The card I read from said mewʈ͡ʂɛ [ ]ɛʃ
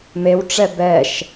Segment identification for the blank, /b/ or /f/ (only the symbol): b